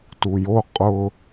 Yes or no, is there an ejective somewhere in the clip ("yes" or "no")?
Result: yes